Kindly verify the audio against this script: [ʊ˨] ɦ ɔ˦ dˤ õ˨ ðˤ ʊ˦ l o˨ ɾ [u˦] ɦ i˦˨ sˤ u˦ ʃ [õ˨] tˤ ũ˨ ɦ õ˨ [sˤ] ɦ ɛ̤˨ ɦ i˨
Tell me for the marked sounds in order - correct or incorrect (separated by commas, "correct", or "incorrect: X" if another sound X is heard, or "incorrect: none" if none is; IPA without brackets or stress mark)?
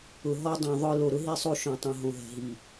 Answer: correct, incorrect: ʊ˦, correct, incorrect: none